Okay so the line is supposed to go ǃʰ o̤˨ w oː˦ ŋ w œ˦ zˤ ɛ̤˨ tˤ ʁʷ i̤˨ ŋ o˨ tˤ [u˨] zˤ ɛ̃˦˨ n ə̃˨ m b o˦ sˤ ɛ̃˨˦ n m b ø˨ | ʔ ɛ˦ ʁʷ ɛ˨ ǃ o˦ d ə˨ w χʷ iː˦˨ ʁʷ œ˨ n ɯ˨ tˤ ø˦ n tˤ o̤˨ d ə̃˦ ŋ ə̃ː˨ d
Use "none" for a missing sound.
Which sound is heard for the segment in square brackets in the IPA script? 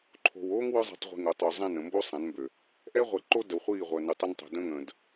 o˨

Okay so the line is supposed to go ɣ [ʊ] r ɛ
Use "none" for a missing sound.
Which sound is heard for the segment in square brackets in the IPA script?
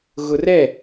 ʊ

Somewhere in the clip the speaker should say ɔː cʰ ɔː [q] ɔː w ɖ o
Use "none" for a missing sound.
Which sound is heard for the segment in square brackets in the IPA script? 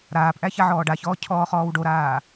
χ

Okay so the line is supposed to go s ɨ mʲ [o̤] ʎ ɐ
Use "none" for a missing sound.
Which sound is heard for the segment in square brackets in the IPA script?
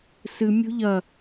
o̤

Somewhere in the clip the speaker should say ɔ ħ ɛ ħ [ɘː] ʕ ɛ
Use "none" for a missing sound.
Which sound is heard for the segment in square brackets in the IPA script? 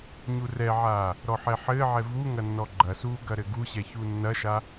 ɘː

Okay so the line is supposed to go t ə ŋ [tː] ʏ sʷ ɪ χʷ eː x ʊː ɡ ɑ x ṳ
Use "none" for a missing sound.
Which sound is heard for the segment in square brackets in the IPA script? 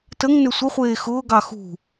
n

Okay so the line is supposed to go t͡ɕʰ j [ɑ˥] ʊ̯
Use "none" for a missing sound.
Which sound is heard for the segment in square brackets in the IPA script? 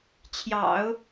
ɑ̰˨˩˦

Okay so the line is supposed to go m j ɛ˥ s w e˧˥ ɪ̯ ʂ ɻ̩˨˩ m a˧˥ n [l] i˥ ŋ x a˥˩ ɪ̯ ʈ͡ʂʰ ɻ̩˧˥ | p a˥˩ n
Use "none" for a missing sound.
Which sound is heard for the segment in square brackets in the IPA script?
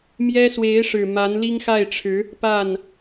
l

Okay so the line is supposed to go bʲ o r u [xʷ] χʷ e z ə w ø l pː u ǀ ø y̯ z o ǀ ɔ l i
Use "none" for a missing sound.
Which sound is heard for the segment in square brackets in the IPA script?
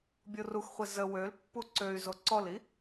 x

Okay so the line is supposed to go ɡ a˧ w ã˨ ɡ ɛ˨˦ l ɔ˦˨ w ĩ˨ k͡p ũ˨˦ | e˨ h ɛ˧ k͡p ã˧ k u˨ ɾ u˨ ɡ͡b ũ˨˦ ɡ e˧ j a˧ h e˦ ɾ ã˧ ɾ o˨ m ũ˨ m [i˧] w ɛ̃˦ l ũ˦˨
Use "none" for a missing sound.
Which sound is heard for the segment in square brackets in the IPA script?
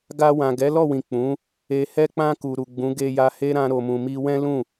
i˧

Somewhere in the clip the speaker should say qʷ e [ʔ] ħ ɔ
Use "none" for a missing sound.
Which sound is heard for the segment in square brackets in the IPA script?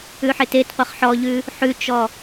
χ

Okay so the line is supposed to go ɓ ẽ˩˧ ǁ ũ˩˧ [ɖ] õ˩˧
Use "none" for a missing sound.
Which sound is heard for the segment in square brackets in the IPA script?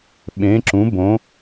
b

